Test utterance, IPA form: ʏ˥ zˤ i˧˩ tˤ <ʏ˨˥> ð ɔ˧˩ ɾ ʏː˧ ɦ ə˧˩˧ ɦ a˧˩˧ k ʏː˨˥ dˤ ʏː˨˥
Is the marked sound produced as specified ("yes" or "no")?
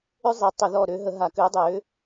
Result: no